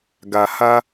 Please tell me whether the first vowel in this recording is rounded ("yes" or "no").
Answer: no